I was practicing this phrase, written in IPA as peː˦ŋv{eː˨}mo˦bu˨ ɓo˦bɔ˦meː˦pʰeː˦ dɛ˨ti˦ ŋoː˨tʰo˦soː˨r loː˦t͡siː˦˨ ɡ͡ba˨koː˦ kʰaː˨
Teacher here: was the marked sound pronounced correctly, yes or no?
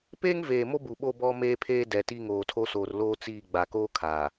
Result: yes